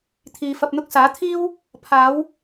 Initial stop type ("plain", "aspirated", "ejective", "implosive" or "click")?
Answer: aspirated